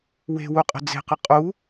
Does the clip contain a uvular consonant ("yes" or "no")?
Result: yes